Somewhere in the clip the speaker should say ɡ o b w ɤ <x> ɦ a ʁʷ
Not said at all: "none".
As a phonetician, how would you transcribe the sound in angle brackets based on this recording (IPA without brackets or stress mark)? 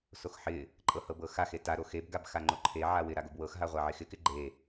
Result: x